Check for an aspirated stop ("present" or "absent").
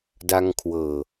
present